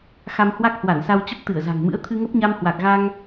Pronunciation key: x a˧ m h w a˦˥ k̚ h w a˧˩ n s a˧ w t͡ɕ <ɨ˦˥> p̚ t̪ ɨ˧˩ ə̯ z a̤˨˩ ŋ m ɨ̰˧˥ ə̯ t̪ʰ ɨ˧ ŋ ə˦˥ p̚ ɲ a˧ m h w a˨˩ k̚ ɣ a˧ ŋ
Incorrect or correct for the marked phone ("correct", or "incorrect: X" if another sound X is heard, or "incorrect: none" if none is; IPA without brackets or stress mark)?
incorrect: ə˦˥